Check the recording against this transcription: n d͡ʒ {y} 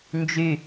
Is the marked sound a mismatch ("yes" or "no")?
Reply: no